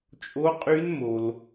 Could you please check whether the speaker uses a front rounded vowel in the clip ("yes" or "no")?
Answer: yes